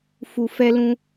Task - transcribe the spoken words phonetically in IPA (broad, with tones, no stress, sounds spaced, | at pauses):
f u˨ f ɛ˧ l ũ˧